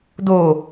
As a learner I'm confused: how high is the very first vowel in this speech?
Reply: mid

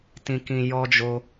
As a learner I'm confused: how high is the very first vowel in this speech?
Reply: high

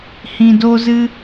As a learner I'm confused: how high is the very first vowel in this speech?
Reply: high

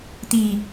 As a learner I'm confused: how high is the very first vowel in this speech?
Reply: high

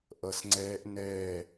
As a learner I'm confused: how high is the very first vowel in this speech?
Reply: mid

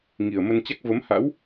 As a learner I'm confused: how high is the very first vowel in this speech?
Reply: high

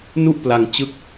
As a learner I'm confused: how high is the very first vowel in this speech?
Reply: high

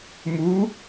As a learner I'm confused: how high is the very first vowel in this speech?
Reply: high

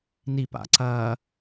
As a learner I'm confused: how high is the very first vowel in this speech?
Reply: high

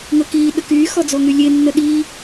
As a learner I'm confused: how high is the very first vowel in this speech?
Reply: mid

